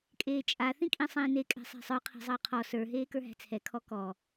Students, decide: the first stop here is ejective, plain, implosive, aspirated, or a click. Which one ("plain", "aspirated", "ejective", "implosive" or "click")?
ejective